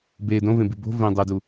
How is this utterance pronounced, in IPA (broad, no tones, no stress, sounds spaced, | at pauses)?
b e d õ v ẽ b i b o̤ v ẽ dˤ e d u